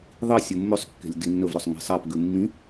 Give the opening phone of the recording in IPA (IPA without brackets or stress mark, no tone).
ðˤ